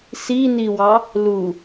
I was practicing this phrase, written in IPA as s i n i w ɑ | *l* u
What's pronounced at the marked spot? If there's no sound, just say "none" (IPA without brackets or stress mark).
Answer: l